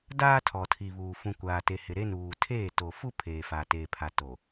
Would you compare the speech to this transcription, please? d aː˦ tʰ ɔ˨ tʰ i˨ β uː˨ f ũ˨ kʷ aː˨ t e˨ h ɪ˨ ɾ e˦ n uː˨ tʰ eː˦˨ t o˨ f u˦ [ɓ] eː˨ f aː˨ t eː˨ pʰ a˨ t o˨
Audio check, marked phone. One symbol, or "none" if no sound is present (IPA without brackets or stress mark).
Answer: pʰ